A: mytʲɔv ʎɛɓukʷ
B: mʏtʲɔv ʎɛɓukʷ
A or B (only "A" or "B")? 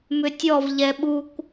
B